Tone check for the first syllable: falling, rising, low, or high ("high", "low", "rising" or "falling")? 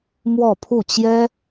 falling